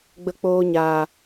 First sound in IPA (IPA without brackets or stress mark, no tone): ɡ͡b